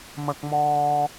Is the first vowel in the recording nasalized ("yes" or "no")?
no